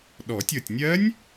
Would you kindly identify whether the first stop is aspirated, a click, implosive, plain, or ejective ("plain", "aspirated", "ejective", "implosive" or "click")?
implosive